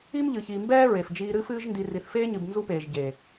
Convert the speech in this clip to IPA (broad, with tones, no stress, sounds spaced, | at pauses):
i˦ m ʎ ɨ˨ ç iː˨ m b ɛː˦ ɹ e˨ f d͡ʒ iː˦ ɾ ɨ˦ f ɨː˦ ʒ n d i˨ r i˨ θ f eː˦ ɲ ɨ˨ b n z u˦ p eː˨ ʒ ɟ e˨